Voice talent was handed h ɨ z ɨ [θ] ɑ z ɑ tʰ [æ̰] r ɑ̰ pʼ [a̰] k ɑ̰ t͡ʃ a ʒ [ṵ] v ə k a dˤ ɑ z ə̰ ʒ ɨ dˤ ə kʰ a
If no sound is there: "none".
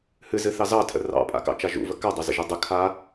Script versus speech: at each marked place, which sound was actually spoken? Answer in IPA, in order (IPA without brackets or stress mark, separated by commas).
θ, ə̰, a̰, ṵ